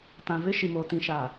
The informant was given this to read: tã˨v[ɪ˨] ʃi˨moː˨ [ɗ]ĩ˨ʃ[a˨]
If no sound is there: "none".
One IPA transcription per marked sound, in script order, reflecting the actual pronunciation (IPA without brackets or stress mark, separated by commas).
ɪ˦, t, a˨